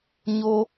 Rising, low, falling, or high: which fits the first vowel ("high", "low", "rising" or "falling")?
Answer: high